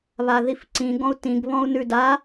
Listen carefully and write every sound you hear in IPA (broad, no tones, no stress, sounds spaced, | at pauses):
β a ð i f ǀ ĩ ɡ ɔ̃ u̯ t ĩ ɡ β ɔ̃ u̯ n ʉ d a